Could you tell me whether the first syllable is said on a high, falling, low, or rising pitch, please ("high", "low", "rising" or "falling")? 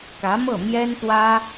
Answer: rising